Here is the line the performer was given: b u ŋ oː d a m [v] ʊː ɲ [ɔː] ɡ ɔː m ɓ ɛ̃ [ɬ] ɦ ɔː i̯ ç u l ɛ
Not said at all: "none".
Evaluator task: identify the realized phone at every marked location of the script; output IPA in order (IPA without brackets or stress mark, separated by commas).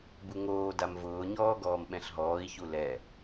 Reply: v, ɔː, ɬ